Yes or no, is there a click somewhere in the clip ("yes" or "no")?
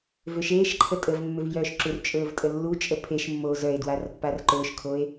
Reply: yes